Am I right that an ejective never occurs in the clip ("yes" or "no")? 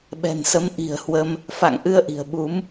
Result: yes